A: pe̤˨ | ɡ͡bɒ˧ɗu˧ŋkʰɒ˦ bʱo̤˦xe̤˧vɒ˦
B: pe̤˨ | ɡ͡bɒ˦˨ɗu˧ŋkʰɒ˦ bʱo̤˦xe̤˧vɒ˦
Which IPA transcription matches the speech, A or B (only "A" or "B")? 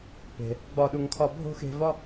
B